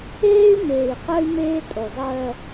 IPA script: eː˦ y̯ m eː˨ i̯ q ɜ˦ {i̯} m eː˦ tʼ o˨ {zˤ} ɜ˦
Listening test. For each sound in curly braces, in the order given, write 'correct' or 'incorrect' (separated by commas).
incorrect, correct